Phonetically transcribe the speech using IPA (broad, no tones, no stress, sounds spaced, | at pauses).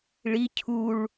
ɭ i cʰ u ɭ